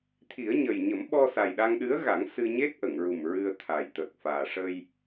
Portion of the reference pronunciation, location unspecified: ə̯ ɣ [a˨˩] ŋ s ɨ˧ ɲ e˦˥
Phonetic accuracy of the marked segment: incorrect: a˨˩˦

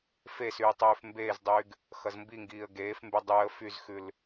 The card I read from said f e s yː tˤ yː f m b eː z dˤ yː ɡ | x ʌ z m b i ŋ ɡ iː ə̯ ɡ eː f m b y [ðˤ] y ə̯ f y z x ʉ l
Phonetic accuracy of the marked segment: incorrect: dˤ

